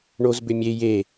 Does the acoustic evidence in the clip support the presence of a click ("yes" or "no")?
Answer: no